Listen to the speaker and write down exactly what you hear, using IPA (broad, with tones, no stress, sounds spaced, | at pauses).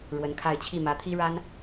ɻ w ə˧˥ n kʰ a˥˧ ɪ̯ t͡ɕʰ i˥˩ m ä˧˥ t̪ʰ i˥ ɻ a˥ n